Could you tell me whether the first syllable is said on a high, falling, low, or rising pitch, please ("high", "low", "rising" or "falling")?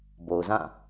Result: low